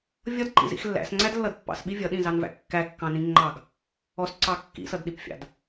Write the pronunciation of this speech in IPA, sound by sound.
vʲ ʌ d ǃ ḭ z ḭ x lː æ̰ s ŋ͡ǀ æ d lː ʌ d pː ɑ̰ s ɓ i vʲ ʌ ɗ ĩ z ɑ n v æ̰ kː æ kː ɑ̃ n ĩ ŋ͡ǃ ɑ ɡ | ɔ s ǀ ɑ kː ḭ s ʌ d ɗ i p fʲ ɑ̰ d

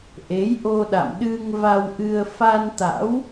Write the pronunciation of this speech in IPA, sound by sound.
ʔ e˨˦ j ʔ o˧ ɗ a̰˧˨ m ɗ ɨ˧ ŋ v a˧ w ʔ ɨ˧ ə̯ f a˧ n t̪ a̰˧˥ w

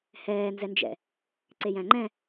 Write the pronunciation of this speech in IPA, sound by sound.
h ɛː n z ɛ n d͡ʒ ɛ̰ | ǀ e j æ̃ ŋ͡ǃ ɛ̃

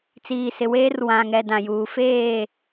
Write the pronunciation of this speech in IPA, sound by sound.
t͡s iː˨ s ɪ˨ w eː˦ r w ã˨ ŋ ɛ˨ d ã˨ j uː˨ f eː˦˨

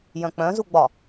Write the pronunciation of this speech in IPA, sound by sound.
j œ̃ k͡p œ̃ z u ɡ͡b ɒ

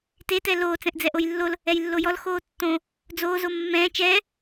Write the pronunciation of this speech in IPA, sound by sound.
t e t ɛ l oː t͡s ɛ̃ ʔ d͡z ɛ ʔ o j lː o l | ɛ j lː o j ɔ l x oː tː õ | d͡z oː z o mː ɛ̃ː t͡ʃ ɛː

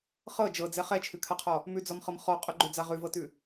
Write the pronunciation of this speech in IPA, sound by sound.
χ ɤ d͡ʒ ɤ d͡z ɛ χ ɛ t͡ʃʰ ʉ kʰ a qʰ ɔ | m ʉ d͡z ɔ m χ ɤ m χ ɔ qʼ ʊ ɡ͡ǃ ʉ d͡z a ʁ ʉ v ɤ t ʉ

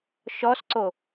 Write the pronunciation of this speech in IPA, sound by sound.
ʃ ɔ s ǀ o

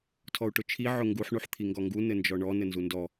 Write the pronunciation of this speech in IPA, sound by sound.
tʰ ɔ u̯ ʈ ʊ t͡ʃʰ i ʕ ʊ ŋ ɡ u ħ ɳ u ħ t̪ʰ i ŋ ɡ ɔ ŋ ɡ u n ɘ n d͡ʒ ɔ ɳ ɔ n ɘ n z u n d ɔ

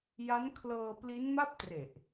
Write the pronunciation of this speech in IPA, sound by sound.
j a˦˥ n kʰ l ɤː˧ p l i˦˥ n m a˥˩ p̚ t r e˨˩ ʔ

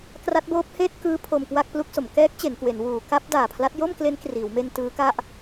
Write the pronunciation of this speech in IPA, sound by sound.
k r a˦˥ t̚ b oː˦˥ p̚ h eː˥˩ t̚ k ɯː˦˥ pʰ o˧ m k w a˥˩ k̚ p l u˦˥ k̚ s o˩˦ m k ɛː˦˥ k̚ t͡ɕ e˩˦ n k w e˩˦ n w uː˩˦ k a˦˥ p̚ d aː˨˩ pʰ l a˦˥ t̚ j o˥˩ m k l e˦˥ n k r iː˩˦ w m e˧ n t ɯː˦˥ k a˥˩ ʔ

